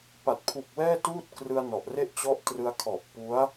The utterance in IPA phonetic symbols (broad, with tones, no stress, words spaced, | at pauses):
pa˨˩t̚pʰu˨˩k̚wɛː˥˩tuː˥˩t̚ krɯ˧a̯nɔ˨˩ʔre˥˩ʔ t͡ɕɔ˦˥ʔtrɯ˧a̯ kʰɔ˨˩ʔ pu˦˥a̯